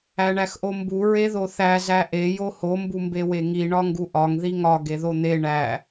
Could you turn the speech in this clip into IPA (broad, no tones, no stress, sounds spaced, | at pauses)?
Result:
æ ɳ æ x ʔ o m b u ɹ e ð o θ æ z æ ʔ e j o h o m b u m b e w e ŋ i ɳ ɒ ŋ ɡ u ʔ ɒ ŋ ð i ŋ ɒ ɡ e ð o n̪ e ɳ æ